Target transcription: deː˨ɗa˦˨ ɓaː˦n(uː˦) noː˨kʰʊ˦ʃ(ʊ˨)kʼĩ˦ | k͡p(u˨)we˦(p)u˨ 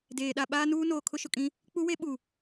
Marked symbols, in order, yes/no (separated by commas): yes, yes, no, no